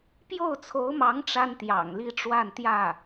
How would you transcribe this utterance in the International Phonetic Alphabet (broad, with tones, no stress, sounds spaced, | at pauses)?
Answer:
p j o˥˩ ʊ̯ t͡sʰ o˧˥ ʊ̯ m ɑ˧˥ ŋ ʈ͡ʂ a˥ n t̪ j ɑ̰˨˩ ŋ l i˥˧ ʈ͡ʂ w a˥˧ n t̪ j ä˥˩